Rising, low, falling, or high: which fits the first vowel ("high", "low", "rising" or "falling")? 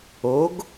rising